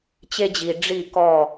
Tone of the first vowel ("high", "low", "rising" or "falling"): high